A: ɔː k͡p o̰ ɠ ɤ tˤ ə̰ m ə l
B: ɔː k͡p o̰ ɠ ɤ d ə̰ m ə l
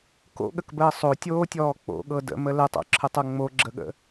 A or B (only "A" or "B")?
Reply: B